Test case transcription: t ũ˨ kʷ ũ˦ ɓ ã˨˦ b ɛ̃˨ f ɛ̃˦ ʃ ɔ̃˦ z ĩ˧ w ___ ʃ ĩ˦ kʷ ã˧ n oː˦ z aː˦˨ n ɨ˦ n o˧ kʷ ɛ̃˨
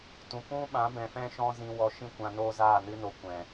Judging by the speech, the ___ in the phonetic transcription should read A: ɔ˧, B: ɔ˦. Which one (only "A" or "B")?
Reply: A